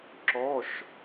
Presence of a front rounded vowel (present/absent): absent